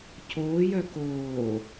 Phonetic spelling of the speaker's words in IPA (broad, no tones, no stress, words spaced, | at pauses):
cʰoːjœ koː